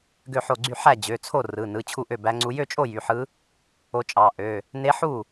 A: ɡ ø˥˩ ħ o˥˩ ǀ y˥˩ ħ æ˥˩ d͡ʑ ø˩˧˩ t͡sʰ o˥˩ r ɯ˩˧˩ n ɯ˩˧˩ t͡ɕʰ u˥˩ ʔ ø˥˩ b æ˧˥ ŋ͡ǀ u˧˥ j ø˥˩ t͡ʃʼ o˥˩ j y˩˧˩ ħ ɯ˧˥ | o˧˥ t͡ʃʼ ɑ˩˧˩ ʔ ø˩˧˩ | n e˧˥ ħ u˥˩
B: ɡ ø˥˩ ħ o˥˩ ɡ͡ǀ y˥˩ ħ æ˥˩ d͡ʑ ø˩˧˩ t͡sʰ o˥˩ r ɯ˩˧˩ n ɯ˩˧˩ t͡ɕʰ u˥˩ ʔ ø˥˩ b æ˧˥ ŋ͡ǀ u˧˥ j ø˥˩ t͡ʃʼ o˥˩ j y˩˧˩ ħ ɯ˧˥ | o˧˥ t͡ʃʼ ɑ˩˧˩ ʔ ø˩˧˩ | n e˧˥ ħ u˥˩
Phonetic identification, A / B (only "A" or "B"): B